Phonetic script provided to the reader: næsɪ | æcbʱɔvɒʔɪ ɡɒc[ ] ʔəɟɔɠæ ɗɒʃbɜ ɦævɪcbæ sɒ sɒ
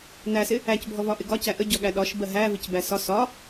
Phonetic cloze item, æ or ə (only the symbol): æ